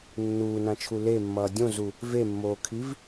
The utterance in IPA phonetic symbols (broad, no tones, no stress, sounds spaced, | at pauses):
nː uː n ã t͡ʃʰ u l e mː ʌː dʲ õ z u | v e mː oː kʰ i v